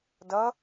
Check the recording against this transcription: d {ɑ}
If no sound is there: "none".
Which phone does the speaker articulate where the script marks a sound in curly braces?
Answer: ʌ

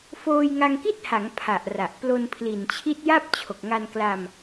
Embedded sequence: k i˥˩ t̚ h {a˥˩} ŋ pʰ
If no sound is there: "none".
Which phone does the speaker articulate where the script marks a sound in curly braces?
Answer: a˩˦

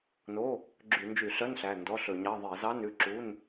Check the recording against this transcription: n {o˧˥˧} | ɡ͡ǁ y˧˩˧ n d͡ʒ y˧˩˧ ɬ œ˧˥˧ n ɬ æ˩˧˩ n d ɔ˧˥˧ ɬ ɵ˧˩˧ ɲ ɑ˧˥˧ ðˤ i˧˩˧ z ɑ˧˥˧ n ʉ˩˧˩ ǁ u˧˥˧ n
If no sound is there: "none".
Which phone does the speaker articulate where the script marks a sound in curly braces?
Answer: o˧˥˧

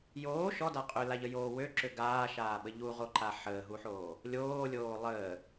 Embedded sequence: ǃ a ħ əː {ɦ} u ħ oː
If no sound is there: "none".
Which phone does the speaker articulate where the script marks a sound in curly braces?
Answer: ɦ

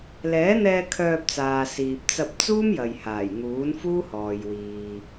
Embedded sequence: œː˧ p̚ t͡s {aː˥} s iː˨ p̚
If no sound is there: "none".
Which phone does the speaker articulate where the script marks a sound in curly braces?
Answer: aː˨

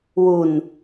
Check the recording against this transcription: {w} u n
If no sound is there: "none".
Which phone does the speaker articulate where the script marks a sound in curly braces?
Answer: w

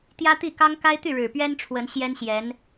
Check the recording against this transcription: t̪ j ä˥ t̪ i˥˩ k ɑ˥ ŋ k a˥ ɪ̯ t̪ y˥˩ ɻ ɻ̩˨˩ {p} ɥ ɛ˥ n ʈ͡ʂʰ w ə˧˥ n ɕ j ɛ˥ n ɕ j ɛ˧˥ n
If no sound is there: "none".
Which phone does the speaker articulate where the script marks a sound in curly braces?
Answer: p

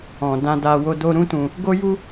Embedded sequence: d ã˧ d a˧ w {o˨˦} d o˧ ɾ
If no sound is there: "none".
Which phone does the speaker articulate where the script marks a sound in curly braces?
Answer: o˧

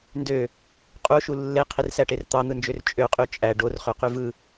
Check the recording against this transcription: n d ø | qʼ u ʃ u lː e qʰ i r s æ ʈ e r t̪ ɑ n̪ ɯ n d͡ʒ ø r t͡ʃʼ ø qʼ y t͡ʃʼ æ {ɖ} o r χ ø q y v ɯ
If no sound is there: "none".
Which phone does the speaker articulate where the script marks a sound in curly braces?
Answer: ɖ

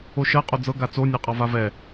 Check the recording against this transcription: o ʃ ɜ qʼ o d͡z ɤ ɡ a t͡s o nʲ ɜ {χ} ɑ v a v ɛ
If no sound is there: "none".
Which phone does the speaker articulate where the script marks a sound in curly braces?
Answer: qʼ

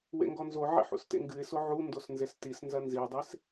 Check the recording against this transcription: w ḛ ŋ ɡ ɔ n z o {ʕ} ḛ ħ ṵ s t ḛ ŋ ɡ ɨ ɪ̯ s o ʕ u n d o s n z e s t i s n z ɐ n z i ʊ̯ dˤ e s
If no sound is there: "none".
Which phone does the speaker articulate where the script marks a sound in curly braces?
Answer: ʕ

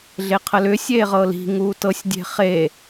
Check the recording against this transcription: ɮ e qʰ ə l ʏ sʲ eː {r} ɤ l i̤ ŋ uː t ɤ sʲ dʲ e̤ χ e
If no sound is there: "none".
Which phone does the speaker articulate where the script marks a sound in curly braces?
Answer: ʁ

